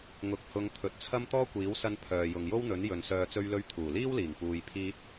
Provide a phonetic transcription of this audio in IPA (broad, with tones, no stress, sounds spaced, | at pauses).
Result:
ŋ ʊ˨˥ k̚ h ʊ˨˧ ŋ t̪ʰ ɵ˨˥ t̚ t͡sʰ ɐ˥ m t̪ ɔː˥ kʷ iː˨˥ w s ɐ˧ n pʰ œː˨ j ʊ˨ ŋ j o˥ w n̪ ɵ˨˥ n j ɵ˨ n s œː˨ t͡s ɵ˧ ɥ l ɵ˧ ɥ t̪ʰ uː˨˩ l iː˥ w l iː˨˩ ŋ p uː˨ j pʰ iː˧ t̚